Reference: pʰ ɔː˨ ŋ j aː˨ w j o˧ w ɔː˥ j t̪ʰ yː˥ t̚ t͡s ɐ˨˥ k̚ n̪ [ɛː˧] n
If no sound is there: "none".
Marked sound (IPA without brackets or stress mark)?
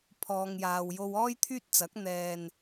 ɛː˧